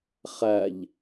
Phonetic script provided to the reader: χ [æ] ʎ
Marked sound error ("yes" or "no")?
no